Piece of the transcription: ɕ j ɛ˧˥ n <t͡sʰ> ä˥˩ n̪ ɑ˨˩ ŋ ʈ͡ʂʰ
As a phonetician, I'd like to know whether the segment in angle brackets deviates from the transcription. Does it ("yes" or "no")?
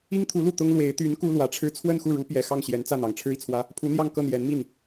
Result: yes